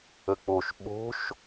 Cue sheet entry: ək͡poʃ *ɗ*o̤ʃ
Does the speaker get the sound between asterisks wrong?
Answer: yes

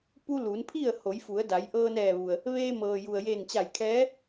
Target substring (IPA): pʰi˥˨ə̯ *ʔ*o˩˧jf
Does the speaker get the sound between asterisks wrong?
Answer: yes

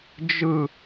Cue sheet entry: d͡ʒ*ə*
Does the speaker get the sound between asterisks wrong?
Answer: yes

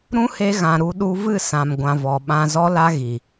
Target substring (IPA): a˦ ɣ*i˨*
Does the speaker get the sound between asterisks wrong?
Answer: no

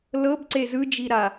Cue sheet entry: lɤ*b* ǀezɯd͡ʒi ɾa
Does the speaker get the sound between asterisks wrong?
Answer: no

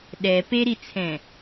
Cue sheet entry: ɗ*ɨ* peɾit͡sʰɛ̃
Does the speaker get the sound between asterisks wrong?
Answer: yes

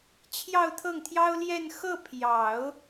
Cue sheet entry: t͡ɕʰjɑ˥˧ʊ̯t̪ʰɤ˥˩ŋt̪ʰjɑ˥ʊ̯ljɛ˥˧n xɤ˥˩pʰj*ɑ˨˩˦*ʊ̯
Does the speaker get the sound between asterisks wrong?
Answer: no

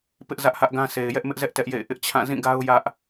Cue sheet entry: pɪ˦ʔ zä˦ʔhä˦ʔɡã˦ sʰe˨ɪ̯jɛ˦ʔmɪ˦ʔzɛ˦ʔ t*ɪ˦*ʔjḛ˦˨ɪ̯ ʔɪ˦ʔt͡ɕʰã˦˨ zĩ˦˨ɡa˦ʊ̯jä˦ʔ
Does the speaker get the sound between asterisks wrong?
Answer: yes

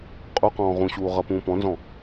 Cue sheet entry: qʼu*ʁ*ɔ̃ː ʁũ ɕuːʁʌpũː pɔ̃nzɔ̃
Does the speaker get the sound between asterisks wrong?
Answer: yes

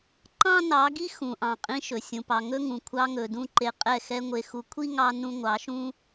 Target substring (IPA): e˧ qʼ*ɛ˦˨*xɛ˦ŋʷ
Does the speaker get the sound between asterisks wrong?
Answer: no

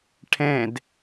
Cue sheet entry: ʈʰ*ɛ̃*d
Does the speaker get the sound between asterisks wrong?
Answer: no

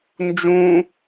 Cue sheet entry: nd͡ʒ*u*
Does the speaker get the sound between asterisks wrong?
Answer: yes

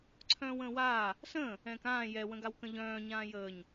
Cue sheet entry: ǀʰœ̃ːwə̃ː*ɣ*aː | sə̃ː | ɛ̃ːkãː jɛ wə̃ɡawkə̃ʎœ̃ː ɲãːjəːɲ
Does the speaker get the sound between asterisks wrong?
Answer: yes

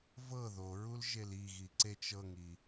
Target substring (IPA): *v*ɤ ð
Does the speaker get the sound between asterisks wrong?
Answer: no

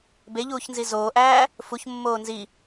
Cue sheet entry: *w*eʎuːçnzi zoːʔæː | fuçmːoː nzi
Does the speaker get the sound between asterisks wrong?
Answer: yes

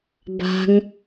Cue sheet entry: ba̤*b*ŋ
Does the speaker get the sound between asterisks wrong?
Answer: yes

